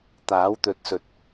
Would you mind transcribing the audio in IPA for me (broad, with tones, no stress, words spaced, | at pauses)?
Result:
t̪aː˨˥wt̪ɵ˧t̚sɵ˧t̚